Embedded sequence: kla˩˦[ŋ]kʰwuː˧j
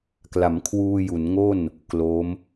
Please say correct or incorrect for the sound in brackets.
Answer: incorrect